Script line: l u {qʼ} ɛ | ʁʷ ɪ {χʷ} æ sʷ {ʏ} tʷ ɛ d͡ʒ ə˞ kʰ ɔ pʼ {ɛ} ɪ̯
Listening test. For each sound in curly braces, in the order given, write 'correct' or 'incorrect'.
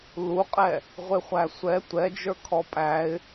correct, correct, incorrect: ɛ, incorrect: æ

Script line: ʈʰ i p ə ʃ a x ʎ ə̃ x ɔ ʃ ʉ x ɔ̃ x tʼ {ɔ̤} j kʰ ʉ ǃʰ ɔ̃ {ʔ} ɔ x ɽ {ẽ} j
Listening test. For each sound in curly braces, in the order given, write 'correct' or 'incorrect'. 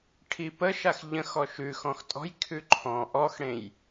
correct, correct, correct

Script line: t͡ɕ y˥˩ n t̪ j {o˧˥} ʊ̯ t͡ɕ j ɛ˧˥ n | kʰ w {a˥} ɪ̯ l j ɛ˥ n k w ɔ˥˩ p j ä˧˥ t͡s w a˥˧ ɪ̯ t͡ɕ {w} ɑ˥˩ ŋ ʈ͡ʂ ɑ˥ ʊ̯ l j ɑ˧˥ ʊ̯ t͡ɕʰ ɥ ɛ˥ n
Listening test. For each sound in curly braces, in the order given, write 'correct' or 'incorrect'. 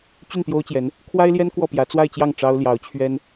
incorrect: o˥, correct, incorrect: j

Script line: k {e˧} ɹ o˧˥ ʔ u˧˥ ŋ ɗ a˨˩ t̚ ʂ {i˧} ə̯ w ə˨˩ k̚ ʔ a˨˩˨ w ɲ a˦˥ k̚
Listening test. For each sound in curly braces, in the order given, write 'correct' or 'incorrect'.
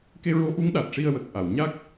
correct, correct

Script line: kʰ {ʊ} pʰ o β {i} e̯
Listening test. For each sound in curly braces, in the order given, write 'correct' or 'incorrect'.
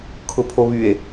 correct, incorrect: y

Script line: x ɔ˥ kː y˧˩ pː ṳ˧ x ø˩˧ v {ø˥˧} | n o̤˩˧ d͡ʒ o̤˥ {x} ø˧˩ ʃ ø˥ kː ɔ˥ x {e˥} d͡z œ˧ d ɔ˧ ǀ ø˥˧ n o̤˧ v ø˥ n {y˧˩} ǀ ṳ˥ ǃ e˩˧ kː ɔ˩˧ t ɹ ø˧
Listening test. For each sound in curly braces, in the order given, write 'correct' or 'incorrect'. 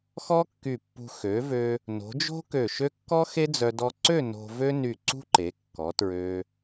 incorrect: ø˧, incorrect: k, correct, correct

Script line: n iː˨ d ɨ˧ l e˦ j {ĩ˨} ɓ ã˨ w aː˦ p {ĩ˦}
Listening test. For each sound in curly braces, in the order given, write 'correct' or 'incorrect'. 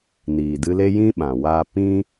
incorrect: ĩ˦, correct

